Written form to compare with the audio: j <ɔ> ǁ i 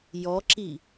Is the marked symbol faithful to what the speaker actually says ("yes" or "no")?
yes